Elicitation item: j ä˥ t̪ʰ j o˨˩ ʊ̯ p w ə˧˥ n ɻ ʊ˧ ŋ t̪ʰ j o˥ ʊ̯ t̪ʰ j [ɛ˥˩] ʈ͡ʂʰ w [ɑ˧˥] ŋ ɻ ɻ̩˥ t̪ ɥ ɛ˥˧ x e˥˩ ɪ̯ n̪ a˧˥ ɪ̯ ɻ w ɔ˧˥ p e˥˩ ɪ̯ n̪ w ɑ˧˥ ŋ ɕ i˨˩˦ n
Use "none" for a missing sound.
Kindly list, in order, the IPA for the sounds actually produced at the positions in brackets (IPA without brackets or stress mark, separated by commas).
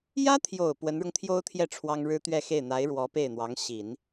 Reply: ɛ˥˩, ɑ˥